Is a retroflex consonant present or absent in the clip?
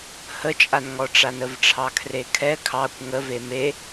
present